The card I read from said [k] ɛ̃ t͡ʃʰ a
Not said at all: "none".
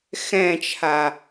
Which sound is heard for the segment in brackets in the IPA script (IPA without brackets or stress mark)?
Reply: x